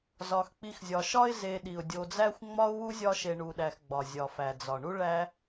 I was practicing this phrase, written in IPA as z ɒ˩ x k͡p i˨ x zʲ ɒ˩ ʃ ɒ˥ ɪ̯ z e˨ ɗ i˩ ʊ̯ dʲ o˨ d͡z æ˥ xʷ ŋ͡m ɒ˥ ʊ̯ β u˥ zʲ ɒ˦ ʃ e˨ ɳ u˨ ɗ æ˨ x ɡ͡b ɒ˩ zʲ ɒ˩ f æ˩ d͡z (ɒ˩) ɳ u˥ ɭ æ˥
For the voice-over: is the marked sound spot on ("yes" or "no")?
yes